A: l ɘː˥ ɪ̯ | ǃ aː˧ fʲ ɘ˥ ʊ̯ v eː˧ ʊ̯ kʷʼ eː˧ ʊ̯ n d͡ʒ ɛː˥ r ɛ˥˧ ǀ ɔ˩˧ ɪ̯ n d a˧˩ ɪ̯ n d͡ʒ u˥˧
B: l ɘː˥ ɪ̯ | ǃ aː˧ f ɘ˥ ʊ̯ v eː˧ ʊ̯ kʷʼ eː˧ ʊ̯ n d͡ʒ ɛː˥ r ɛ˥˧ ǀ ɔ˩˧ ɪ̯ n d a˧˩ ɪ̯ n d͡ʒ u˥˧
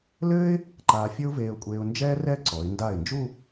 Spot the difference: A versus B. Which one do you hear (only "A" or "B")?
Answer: A